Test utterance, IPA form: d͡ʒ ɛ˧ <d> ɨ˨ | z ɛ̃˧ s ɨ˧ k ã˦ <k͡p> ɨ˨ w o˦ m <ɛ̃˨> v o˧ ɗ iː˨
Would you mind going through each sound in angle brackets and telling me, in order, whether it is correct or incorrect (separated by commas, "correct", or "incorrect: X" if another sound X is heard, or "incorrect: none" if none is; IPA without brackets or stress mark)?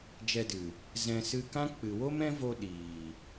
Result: correct, correct, incorrect: ɛ̃˦